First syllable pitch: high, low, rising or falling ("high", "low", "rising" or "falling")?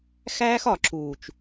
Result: high